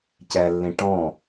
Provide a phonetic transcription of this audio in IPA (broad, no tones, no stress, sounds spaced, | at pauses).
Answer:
c ɛ lː ĩ ʈ ɔ̃